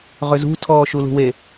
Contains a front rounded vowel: yes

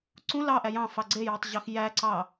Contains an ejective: no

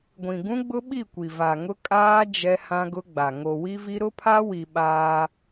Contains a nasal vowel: yes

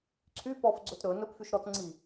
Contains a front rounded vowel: yes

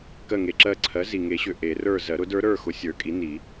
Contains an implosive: no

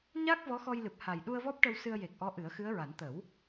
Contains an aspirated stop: no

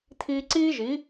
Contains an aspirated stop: yes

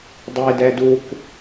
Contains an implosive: no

